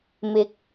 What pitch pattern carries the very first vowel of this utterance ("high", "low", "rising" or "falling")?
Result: rising